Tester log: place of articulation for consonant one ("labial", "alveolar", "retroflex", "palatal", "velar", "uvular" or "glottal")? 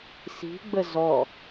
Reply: alveolar